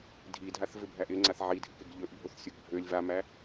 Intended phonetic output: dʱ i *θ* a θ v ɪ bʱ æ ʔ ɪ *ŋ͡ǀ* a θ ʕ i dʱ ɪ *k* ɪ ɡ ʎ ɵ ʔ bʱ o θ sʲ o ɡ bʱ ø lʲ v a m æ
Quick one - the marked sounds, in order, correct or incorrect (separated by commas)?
incorrect, correct, correct